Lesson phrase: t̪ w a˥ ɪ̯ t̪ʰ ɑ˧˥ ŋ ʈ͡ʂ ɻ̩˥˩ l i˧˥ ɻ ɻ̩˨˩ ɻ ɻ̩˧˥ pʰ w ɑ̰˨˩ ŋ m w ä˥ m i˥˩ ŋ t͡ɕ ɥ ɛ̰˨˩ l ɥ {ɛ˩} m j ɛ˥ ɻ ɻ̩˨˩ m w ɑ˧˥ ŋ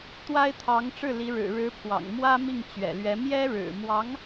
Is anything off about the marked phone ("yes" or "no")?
yes